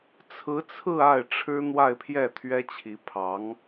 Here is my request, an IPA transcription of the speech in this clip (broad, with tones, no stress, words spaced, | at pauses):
t͡sʰɹ̩˧˥t͡sʰɹ̩˥˧ a˥˩ɪ̯ʈ͡ʂʰɻ̩˥ n̪wa˥˧ɪ̯pʰjɛ˥˩ t̪ʰɥɛ˥t͡ɕʰi˧˥pʰɑ˧˥ŋ